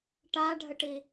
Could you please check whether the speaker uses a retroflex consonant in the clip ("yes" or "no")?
yes